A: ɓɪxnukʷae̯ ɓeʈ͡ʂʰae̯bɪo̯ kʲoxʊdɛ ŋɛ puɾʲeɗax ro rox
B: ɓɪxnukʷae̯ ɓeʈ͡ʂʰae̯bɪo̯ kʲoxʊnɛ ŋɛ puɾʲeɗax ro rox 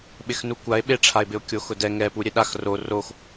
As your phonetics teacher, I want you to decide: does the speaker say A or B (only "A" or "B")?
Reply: A